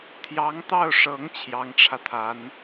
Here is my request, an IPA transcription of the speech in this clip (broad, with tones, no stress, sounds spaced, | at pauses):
t̪ʰ j ɑ˧˥ ŋ t̪ ɑ˥˩ ʊ̯ ʂ ɤ˧˥ ŋ t͡ɕʰ j ɑ˧˥ ŋ ʈ͡ʂʰ ä˧ t̪ʰ a˧˥ n